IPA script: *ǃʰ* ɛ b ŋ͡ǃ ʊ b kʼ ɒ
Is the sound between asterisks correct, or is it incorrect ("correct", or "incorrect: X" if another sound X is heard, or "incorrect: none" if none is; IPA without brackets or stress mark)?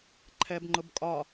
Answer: correct